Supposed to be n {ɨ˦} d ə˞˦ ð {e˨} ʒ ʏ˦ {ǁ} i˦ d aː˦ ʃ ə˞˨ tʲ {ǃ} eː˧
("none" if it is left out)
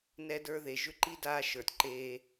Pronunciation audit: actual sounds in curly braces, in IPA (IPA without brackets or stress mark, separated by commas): ɛ˦, e˨, ǃ, ǃ